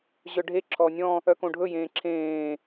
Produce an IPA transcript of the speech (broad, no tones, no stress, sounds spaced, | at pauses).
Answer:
ʑ œ ɖʱ e ǁʰ ɔː nʲ ɔ̃ | œ k õ ɖʱ ɵ j ẽː ǁʰ ẽː